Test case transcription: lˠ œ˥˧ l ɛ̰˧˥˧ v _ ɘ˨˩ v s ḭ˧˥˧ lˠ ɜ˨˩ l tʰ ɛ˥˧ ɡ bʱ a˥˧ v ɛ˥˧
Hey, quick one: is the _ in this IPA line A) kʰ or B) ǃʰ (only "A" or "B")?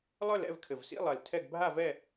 A